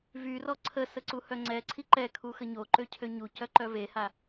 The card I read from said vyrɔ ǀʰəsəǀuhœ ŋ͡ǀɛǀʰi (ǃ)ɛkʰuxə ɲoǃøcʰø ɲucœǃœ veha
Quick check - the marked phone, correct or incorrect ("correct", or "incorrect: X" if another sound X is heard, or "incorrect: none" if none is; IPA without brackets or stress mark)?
correct